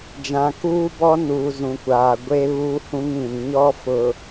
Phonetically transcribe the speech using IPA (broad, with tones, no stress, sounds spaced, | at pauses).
d͡ʒ ã˨ k uː˦ b ɔ˦ n uː˨ z ũ˨ kʷ aː˨ ɡʷ e˦ β uː˦ h ũ˦ ŋ ĩ˨ n ɲ ɔ˦ f ʊ˨